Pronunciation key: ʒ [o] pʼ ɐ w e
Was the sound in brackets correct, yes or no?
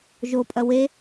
yes